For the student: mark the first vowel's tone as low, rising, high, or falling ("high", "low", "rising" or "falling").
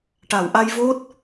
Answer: low